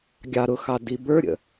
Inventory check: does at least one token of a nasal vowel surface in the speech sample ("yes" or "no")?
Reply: no